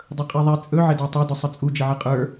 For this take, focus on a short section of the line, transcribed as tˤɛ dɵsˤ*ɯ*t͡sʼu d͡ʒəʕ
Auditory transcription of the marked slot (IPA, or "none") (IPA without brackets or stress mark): ə